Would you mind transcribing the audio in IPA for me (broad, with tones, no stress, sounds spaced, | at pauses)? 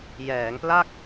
j ɛː˩˦ ŋ p l a˥˩ k̚